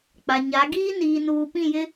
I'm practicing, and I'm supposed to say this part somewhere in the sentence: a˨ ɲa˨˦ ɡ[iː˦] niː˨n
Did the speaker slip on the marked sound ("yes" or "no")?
no